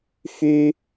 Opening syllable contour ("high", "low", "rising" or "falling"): high